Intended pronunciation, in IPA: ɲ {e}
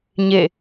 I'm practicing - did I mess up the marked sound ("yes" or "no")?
no